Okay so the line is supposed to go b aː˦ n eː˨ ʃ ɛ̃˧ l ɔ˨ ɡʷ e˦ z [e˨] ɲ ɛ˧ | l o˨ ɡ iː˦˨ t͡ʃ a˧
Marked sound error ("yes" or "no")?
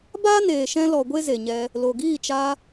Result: no